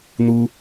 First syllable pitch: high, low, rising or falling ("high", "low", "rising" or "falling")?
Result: high